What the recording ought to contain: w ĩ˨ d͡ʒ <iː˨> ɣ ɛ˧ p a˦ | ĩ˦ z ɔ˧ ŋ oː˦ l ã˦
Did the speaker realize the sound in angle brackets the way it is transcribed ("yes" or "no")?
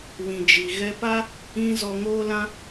no